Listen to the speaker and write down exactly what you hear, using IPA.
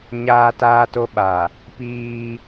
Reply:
ɲaː˦taː˦to˦ɓa˨ | piː˦

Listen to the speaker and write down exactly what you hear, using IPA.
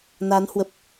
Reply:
naː˨˦nhwə˨˩p̚

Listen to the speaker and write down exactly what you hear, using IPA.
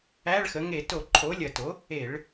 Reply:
æ˧˥˧ɭxə˩˥ ŋe˧˩˧to˧˩˧ǃʰo˩˥ lʲɐ˧˩˧to˩˥ | e˧˩˧ɭ

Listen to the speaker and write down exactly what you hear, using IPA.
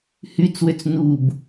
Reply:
hyt͡swøt͡s nub

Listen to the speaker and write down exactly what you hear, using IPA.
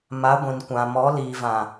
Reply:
ma˨˦ɡʷĩ˨nkʷã˨ mɔ˨˦liː˨vã˨

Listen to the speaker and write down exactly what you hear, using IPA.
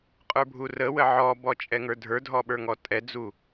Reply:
qʼə˞bʱurəwə ʕɔbɔ t͡ʃʼɛŋə˞dʱə˞dʱɔ ɓə˞ŋɔtʼɛd͡zu

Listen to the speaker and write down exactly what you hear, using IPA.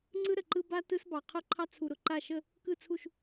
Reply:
ŋ͡ǀɯ˦ ɾə˨ǃɯ˦ ba˦ tɯ˦sbɑ˨ qʰʊ˦˨ǃʰɑ˦ t͡sʰu˨ɾʊ˨ǃa˦˨ ʃə˦˨ | kɯ˦˨t͡sʰu˦˨ʃ

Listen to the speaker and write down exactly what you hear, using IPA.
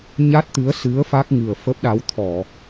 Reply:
ɲa˦˥t̚t̪ɨ˨˦ə̯sɨ˨˦ə̯ fa˦˥k̚ŋɨ˨˩ə̯ fə˦˥p̚ɗa˨˦w t̪ʰɔ˧˩˨

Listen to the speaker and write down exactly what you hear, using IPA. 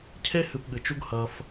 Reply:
cʰe˦ hɨ˧pɠɨ˨t͡ʃu˦ɡ hɐ˧f

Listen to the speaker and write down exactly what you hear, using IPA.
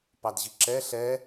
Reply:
pɑdʑiǁɛ ɬɛ

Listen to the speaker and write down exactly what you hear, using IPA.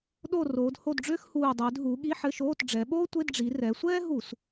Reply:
ɗo˦˨roː˩˧dho˦˨dɖ͡ʐʏː˥x huː˨˩dˤʏː˩˧d ɦu˩˧ ɠi˧˥˧ħɘ˧˥˧ʃoː˧˥˧t ɖ͡ʐɛ˩˧ɓoː˥tʷe˧˥˧d ɖ͡ʐi˩˧rɛ˩˧sʷɛː˥ɦu˧˩˧s

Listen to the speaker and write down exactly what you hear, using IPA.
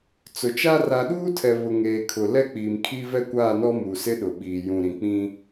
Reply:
t͡sʊ˨t͡ʃa˦ ra˨ɗuː˦tʰɛ˨ βʊ˨ŋeː˨kʰʊ˨ lɛ˦k͡piː˨mkʰi˦ vɛ˦kʷaː˦˨nɔ˦ mu˨sɪ˦ɗʊ˨ɓiː˨ jũ˨ɾĩ˨k͡pĩ˦

